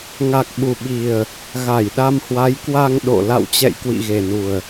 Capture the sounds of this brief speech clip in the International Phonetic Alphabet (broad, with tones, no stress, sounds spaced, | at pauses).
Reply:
ŋ a˨˩ k̚ ɓ u˨˩ ɓ i˨˩ ə̯ | ɣ a˧˩ j ɗ a˧ m h w a˨˦ j k w a˧ ŋ ɗ o̰˧˨ l a̰˧˨ w t͡ɕ ɛ̰˧˨ j k w ḭ˧˨ ɣ e˨˩ n u˨˩ ə̯